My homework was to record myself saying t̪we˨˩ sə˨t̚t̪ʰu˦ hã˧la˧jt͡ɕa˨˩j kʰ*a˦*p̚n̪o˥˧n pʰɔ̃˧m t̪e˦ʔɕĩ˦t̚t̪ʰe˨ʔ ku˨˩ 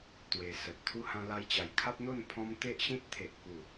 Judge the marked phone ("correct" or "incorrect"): correct